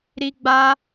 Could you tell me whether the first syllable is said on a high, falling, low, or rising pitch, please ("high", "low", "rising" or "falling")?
high